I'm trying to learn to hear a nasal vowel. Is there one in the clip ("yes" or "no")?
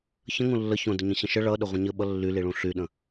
yes